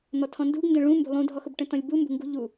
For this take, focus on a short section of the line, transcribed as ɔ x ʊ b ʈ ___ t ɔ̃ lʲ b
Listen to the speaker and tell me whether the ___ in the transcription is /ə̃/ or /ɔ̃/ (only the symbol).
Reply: ə̃